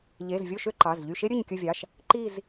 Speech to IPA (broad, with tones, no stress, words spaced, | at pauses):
ʎe˩˧˩z vʲo˦˨ʃø˦˨ ǃɑ˩˧˩zʎy˦˨ʃe˥ ɾʲø˦˨ɲkʲɯ˦˨vʲɑ˩˧˩ʃ | ǃi˦˨z